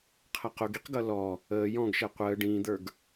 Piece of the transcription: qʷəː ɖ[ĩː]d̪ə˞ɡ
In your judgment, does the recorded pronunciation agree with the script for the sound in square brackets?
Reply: yes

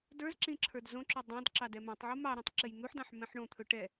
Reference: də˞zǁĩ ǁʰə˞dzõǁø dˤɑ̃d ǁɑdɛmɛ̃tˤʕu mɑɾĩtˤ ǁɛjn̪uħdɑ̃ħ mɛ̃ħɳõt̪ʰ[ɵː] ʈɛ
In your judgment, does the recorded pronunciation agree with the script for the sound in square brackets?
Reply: no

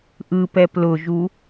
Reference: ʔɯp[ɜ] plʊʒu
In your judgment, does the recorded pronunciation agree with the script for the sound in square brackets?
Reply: no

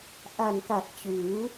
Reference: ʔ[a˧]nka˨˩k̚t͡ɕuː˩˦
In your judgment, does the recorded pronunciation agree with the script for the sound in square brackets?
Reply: no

